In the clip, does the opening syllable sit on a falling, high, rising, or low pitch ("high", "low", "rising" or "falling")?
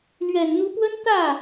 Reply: low